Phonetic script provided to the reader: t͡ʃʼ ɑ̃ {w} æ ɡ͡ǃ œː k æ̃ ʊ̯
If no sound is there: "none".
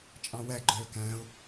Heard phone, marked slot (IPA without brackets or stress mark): w